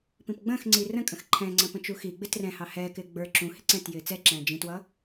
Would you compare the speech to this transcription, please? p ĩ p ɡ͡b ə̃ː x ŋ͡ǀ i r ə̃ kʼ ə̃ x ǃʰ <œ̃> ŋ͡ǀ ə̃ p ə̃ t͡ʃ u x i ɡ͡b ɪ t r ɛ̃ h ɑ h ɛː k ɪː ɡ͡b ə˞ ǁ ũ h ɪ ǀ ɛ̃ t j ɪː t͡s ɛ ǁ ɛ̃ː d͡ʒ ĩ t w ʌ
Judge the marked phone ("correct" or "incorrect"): incorrect